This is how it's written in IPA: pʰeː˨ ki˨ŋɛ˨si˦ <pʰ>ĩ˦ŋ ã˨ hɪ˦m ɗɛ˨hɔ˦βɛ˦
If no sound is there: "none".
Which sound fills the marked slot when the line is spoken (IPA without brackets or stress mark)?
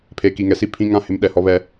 pʰ